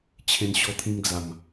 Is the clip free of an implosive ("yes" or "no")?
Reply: yes